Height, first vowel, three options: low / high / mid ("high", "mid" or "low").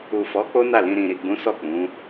high